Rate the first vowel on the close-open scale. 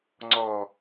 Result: mid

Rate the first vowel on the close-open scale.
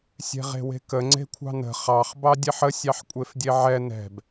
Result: mid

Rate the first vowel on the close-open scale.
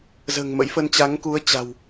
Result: mid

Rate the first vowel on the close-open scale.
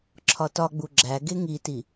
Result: open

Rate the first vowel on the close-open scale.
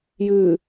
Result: close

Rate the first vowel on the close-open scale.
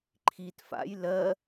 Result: close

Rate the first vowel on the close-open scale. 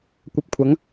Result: open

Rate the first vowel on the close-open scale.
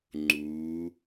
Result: close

